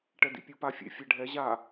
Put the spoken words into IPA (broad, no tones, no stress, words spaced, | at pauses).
ʈɛdḭpʲu pa fʲḛ fʲɛɖʱɛ ʑa